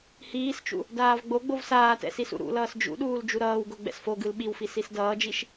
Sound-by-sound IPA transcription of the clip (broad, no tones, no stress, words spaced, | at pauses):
hiːst͡ʃṵ | daːvɡ͡boɡ͡bov saːtɛ̰ sisṵɾṵlʌːs d͡ʒṵɗuːl d͡ʒuɾʌːwɡo ɡ͡bɛ̰sfoɡɯl ɓiwfi sisdʌːd͡ʒiʃ